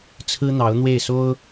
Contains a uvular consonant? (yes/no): no